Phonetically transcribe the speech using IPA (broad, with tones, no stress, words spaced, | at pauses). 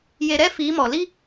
je˨ɾɛ˦ fiː˨˦mɔ˨ li˦